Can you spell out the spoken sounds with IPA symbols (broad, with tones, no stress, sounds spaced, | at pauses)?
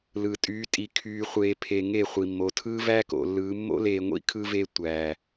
l ɯ˨ tʼ yː˨˦ tʼ i˨ kʰ yː˨ χʷ eː˨ pʰ e˨ ŋ e˦˨ χʷ i˨ mː o˨ tʰ ɯː˦ v æ˦ k o̰˨ lː ɯː˨˦ mː o̰˦ l eː˨ ŋʷ ḭ˦ kʰ ɯ˦ v e˦ tʷ æː˨